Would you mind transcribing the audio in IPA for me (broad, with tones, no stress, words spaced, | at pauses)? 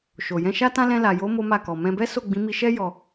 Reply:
ʃo˨ jɛ̃˧ʃa˦tã˦ lɛ̃˧la˨jo˨˦ mo˦ma˦˨ kɔ˨ mɛ̃˧bɛ˦ so˦˨ɡ͡bĩ˨˦mi˧ ʃɛ˦ jɔ˦